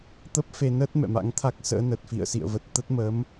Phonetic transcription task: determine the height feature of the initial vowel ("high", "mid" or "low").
mid